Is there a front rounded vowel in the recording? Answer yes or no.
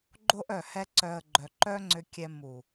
yes